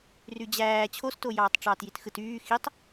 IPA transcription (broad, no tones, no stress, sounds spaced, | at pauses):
r y d͡ʑ æː t͡ɕʰ o s t o j ɑː tˤ ʈ͡ʂ ɑː t j i t x ɯ t yː x i tˤ